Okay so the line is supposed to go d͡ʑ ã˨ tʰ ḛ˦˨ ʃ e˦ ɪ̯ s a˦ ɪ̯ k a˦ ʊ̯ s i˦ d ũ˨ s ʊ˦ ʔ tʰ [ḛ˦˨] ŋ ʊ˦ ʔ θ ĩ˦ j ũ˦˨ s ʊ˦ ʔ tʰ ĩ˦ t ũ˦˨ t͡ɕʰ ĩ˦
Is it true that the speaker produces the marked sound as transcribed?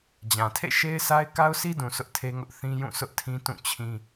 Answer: no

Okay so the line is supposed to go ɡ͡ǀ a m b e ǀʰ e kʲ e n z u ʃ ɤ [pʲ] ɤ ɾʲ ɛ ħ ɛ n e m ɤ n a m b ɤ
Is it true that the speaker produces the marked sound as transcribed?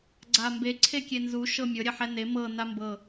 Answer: no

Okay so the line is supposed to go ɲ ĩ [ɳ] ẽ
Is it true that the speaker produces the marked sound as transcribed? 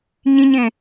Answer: no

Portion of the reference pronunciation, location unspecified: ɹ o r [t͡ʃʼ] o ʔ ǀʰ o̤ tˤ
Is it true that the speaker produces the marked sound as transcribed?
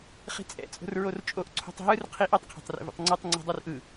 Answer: yes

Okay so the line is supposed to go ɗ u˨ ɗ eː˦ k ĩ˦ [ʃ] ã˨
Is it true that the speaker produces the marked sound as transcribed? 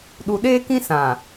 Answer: no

